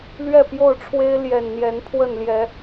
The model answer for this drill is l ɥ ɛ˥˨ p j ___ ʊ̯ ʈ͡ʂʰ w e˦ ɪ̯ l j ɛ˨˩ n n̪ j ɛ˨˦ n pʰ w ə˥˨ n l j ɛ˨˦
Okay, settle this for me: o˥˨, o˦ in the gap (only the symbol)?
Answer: o˥˨